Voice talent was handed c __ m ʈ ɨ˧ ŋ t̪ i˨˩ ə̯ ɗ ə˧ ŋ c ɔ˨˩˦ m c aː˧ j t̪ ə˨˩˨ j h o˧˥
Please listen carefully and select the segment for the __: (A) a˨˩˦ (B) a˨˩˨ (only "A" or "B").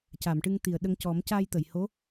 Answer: B